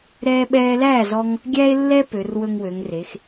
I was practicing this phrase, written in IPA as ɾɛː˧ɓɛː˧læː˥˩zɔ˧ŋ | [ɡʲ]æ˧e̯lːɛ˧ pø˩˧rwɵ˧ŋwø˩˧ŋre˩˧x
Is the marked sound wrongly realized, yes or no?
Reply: no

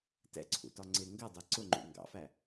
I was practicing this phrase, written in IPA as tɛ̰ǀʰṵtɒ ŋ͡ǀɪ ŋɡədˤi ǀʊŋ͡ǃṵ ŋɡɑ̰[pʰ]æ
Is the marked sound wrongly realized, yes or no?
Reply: yes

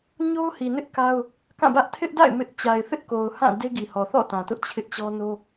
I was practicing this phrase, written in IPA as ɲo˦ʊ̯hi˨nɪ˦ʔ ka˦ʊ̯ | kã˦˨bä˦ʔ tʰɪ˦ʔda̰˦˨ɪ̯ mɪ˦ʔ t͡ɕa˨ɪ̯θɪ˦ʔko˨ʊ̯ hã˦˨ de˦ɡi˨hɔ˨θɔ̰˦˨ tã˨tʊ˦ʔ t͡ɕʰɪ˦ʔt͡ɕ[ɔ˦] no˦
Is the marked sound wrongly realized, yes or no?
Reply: no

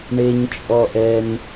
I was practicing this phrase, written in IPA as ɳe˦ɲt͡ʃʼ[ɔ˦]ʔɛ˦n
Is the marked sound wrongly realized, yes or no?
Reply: no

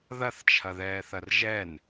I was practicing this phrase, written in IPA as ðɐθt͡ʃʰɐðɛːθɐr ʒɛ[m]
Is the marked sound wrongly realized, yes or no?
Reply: yes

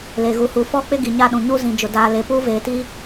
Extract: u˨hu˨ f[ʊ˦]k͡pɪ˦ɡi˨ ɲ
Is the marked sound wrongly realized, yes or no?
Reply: yes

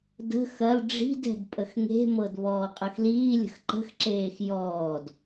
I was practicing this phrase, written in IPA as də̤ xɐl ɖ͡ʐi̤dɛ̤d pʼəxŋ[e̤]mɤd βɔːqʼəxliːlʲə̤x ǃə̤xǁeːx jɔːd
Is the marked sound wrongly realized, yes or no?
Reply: no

